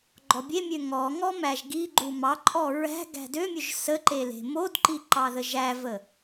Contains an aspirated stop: no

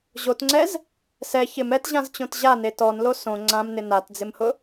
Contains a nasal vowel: yes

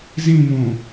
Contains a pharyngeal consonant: no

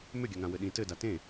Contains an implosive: yes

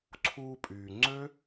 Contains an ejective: yes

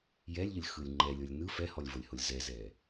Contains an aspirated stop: no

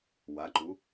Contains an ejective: no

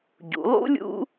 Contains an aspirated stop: no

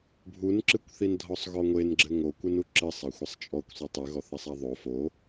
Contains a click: yes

